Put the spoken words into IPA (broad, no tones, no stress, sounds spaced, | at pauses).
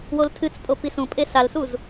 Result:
w o l tʰ ɨ t͡s pʼ o p i s ũ pʼ e s a l s u z